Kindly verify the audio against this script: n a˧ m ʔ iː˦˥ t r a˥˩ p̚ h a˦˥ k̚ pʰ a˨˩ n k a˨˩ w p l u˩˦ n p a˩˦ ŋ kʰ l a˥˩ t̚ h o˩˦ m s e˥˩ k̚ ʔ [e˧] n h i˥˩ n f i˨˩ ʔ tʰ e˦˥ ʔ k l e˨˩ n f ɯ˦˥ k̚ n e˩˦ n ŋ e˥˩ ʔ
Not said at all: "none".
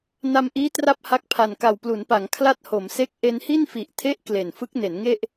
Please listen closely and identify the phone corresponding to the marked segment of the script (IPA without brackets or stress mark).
e˧